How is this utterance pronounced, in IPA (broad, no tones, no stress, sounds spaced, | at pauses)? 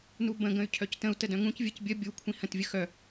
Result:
n u b ə̃ ɡ ə̃ y̯ cʰ œ c t ə̃ u̯ t ə d œ̃ ŋ ũ c vʲ ə c bʲ ə bʲ u kʷʰ ĩ h ə̃ t vʲ ə x œ